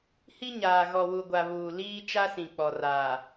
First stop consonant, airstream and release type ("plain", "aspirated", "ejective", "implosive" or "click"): plain